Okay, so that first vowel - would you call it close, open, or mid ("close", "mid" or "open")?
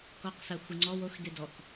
mid